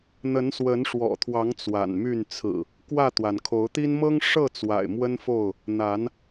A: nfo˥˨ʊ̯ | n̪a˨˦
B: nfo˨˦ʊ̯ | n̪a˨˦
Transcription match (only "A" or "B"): A